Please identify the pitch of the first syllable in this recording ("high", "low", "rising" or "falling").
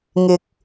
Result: low